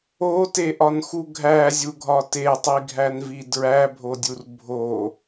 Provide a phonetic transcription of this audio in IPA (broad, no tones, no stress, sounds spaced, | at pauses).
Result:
o t e ʔ ɒ n x u ɡʱ æ zʲ u ɡʱ ɒ t e tˤ i ɡʱ æ n v i d ɹ æ bʱ o dʲ u r bʱ o